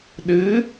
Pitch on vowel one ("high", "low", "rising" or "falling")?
rising